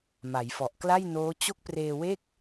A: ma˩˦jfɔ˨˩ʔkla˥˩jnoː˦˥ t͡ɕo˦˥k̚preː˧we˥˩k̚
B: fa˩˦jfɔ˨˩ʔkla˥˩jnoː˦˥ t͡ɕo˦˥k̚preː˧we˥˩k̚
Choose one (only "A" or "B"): A